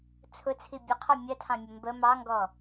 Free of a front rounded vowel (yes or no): yes